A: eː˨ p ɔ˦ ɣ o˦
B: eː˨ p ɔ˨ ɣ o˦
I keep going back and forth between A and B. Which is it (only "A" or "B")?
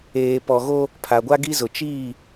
B